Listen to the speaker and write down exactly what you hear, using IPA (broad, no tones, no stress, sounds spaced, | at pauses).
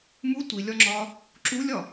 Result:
m u tʷ i lʲ ɒ ŋ͡ǁ ɒ | ǁ u lʲ ɒ